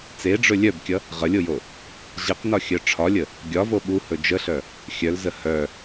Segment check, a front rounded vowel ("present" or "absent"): present